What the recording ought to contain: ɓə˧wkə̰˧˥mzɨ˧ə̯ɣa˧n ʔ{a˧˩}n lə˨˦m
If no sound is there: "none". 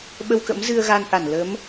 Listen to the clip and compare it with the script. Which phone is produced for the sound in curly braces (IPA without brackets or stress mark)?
a˧˩